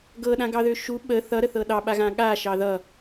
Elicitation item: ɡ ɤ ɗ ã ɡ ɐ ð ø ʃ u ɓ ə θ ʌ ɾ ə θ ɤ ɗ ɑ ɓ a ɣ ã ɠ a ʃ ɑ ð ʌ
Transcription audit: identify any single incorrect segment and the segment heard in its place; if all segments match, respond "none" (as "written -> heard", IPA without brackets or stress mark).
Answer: ɐ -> ɑ